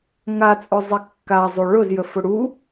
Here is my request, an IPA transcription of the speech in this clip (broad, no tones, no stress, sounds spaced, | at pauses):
ŋ a t͡sʼ ʊ zˤ i kː a zˤ u ɭ ʊ z j ə f ʊ ɽ u